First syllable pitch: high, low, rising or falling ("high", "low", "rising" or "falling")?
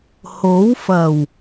rising